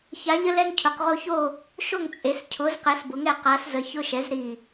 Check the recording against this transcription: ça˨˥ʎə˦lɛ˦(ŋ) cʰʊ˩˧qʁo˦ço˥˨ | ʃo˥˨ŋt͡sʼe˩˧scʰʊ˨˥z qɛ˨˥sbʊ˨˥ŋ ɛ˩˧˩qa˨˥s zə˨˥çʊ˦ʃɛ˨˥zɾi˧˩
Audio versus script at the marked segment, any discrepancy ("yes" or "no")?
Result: no